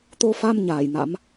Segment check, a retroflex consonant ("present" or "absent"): absent